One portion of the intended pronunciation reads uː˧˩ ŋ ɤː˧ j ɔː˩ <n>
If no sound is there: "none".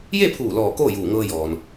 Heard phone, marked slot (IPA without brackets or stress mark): n